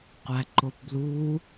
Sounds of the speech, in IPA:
qʷ æ ǃ o p b l u

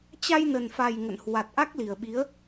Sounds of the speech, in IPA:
t͡ɕ a˧ j n ə˨˩ n f a˨˩ j ŋ ə̰˧˨ n h w a˨˩ t̚ ʔ a˦˥ k̚ l i˨˩ ə̯ ɓ i˨˦ ə̯

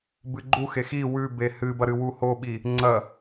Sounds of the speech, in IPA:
b ɨ ɡ͡ǃ u x e x i w ʉ b e h ɨ b ɐ ɾ ɨ w u h o ɓ i | ŋ͡ǀ ɐ

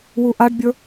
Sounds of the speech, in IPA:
w u ʔ a ɖ bʲ ə˞

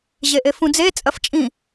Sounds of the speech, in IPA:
ʑ e ʔ e f ũ d͡z e t͡sʼ ɐ f t͡ʃʼ ĩ

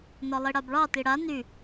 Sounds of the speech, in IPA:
n ɒ lˠ i ɽ a b ɭ ɑ t i ɽ a n y

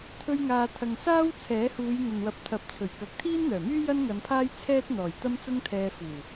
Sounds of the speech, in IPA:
t̪ʰ ɵ˧ ɥ ŋ aː˨ t̪ʰ ɐ˨ ŋ s aː˥ w t͡sʰ ɛː˨˥ h uː˨˧ j n̪ ɐ˨ n w ɐ˨˥ p̚ t̪ʰ ɐ˨˥ p̚ t͡sʰ ɵ˨˩ ɥ k ɐ˨˥ k̚ t̪ʰ iː˥ n n̪ œː˨˩ m yː˥ j ɐ˥ n ŋ ɐ˨˧ n pʰ aː˥ j t͡sʰ ɛː˥ t̚ n̪ ɔː˨˩ j t̪ ɐ˥ m t͡s ʊ˥ ŋ t̪ʰ ɛː˧ f uː˨˩

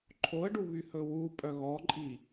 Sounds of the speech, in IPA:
ǃʰ o ə̯ ɖ u β y h ɵ w u pʼ œ ɣ ɔ ǃʼ i

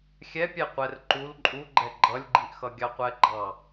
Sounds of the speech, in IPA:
xʲ ɛ pʲ ɛ qʷ ɛ r ǃ u l ǃʼ u ɡ͡ǃ ɛ ɡ͡ǃ ʌ lʲ ɡ͡ǃ i ʔ x ʌ ɡʲ ɑ qʷ ɛ ɡ͡ǃ ɑ

